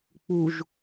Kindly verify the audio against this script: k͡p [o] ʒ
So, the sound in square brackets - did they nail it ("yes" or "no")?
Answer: no